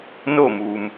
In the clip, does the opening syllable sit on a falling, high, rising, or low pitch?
falling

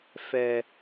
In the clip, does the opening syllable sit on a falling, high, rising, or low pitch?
low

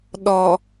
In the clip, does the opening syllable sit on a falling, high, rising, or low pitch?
low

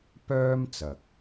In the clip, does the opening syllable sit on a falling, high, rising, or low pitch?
high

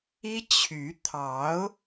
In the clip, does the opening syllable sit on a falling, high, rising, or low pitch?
high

